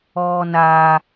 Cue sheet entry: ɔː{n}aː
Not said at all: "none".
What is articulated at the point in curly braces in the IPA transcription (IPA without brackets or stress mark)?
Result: n